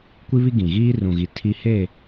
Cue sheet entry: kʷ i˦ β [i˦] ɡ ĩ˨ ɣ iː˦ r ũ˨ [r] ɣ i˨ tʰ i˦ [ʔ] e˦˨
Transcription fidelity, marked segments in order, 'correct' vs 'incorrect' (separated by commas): correct, incorrect, incorrect